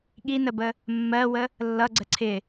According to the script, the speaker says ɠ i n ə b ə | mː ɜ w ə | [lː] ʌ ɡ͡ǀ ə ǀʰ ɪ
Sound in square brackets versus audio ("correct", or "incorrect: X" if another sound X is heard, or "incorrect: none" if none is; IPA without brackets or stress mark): correct